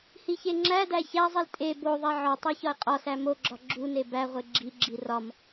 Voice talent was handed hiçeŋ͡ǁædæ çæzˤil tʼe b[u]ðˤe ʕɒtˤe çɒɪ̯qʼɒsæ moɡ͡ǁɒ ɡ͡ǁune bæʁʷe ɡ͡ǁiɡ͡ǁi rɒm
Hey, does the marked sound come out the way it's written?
no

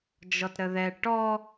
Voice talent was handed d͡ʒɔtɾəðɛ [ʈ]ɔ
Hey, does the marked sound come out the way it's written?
yes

